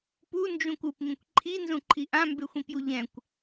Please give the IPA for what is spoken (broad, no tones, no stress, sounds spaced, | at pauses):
p u n d͡ʒ ũ kʷ u p m ĩ kʷ ǃʰ i n z ũ ǃʰ i ʔ ã m b e xʷ ĩ p j u ʎ ɛ̃ kʷ